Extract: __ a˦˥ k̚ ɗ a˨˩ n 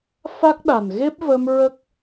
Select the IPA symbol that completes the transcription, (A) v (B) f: B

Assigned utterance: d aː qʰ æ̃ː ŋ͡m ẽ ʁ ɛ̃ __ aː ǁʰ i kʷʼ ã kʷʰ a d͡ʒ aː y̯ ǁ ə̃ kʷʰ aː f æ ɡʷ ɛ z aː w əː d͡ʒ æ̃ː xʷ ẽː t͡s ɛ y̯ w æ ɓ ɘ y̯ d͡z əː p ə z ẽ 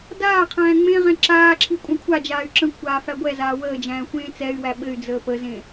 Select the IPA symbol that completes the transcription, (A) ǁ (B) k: A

